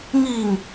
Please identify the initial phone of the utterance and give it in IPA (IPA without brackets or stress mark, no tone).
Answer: ŋ